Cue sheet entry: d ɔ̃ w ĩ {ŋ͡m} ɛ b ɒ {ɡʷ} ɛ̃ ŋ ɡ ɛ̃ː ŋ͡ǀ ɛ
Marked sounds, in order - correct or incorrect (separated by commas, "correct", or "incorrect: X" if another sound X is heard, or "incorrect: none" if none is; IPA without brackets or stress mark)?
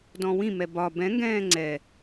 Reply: incorrect: m, incorrect: b